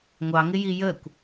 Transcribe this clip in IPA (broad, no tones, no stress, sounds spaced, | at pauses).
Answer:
ŋʷ ɑ ŋ ɪ j i j ə kʷ